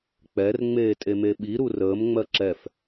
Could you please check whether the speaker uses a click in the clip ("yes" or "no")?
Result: yes